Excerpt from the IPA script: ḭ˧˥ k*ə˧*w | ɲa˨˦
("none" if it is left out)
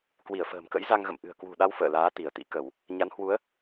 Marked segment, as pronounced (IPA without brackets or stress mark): ə˧˩˨